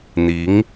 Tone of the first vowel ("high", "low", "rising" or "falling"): rising